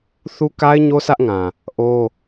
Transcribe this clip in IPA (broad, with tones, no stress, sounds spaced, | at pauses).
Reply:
θ u˦ k a˦ ɪ̯ ɲ o˦ sʰ ä˦ ʔ ŋ ã˨ | ʔ o˦